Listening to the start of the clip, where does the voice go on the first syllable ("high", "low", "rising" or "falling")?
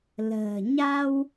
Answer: low